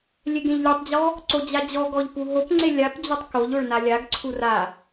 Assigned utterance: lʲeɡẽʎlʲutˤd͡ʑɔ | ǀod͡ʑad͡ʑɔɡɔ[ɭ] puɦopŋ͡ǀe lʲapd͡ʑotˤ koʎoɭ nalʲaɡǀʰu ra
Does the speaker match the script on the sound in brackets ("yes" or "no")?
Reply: no